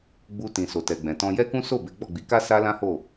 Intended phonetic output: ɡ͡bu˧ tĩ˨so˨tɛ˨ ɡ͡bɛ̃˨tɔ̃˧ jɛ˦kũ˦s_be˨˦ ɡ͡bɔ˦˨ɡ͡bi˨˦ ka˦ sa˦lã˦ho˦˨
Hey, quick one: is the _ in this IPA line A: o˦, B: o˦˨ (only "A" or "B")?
B